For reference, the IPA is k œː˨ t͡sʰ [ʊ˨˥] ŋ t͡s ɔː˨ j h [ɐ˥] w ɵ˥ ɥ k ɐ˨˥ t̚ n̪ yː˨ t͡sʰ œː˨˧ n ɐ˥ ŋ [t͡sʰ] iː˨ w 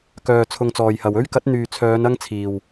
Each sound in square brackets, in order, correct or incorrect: incorrect: ʊ˧, incorrect: ɐ˨, correct

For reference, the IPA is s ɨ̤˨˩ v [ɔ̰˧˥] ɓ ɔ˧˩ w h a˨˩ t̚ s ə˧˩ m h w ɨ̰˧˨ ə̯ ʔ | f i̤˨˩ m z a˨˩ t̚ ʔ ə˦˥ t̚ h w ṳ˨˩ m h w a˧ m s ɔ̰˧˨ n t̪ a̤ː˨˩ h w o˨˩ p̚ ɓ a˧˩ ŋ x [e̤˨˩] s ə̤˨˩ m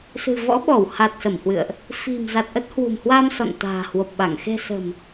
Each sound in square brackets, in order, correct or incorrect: correct, correct

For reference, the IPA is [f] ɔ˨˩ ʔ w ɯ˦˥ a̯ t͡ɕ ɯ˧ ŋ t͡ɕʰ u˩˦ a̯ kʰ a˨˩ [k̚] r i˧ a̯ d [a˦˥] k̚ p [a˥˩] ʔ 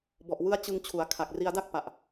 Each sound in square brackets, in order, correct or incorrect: incorrect: b, correct, incorrect: a˥˩, incorrect: a˨˩

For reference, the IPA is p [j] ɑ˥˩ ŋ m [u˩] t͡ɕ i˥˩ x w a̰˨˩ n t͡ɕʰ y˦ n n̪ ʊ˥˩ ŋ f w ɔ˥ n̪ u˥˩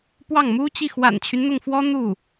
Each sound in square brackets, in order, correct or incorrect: incorrect: w, incorrect: u˥

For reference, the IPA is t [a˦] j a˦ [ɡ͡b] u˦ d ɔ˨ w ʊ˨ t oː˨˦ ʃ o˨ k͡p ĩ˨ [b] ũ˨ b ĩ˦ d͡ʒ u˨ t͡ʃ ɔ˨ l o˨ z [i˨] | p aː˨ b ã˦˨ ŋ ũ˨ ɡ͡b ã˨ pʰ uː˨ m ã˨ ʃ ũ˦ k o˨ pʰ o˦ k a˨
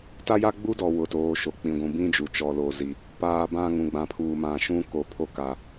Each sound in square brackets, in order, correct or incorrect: correct, correct, incorrect: ɡʷ, correct

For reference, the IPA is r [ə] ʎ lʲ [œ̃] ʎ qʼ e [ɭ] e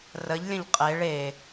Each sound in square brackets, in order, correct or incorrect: correct, incorrect: ə̃, correct

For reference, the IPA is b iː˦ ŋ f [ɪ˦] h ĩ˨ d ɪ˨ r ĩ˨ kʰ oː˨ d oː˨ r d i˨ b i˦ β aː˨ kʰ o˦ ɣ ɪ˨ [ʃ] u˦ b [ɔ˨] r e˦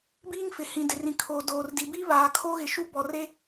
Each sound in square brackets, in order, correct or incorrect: incorrect: ɪ˨, correct, correct

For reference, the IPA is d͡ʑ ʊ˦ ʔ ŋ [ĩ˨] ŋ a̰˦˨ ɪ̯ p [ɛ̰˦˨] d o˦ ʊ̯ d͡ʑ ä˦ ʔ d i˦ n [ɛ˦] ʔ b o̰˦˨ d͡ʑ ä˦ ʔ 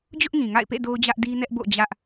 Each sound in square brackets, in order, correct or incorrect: correct, incorrect: ḛ˦˨, correct

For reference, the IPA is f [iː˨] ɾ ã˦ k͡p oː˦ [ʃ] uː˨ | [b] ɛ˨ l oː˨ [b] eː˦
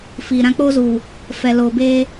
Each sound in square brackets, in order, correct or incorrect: correct, incorrect: z, incorrect: f, correct

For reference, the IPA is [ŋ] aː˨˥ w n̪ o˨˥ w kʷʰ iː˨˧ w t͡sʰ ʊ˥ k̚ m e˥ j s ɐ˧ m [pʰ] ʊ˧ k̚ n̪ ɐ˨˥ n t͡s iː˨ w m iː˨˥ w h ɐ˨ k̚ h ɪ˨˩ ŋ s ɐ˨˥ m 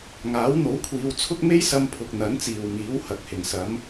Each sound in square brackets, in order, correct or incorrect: correct, correct

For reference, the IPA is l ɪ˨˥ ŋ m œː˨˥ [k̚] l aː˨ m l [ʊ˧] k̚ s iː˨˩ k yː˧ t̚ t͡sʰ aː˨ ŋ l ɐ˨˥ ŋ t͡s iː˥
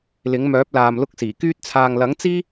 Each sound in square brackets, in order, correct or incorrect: incorrect: p̚, correct

